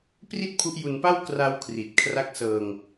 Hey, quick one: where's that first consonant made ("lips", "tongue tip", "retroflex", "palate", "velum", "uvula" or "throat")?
lips